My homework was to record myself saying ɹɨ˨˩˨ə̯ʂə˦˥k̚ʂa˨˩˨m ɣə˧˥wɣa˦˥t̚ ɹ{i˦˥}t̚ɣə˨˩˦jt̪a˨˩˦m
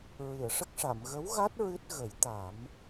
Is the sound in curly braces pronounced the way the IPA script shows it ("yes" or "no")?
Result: no